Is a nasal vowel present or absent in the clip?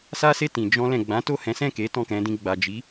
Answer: present